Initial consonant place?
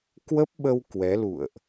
velar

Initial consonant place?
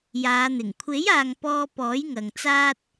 palatal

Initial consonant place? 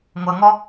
velar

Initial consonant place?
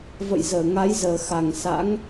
labial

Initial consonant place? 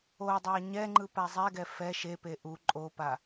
alveolar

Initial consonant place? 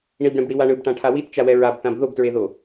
retroflex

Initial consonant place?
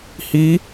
glottal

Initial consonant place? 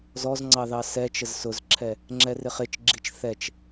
alveolar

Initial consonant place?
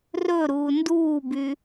alveolar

